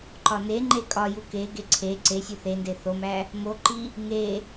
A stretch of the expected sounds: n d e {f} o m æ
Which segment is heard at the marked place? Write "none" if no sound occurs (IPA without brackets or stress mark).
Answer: θ